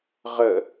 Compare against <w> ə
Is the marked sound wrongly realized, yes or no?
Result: yes